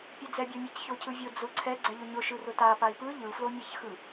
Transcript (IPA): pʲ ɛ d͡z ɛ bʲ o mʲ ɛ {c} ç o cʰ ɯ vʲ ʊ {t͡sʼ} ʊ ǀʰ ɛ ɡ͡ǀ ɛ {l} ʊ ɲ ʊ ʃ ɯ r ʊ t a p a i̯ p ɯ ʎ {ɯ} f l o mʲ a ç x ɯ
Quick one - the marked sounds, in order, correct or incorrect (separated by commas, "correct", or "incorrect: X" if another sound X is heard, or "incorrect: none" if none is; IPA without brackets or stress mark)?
correct, incorrect: d͡z, incorrect: ʎ, correct